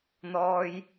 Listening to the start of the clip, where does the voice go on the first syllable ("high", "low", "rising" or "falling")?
low